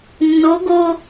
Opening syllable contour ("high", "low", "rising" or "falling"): rising